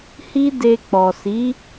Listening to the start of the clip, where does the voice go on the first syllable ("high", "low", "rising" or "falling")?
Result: high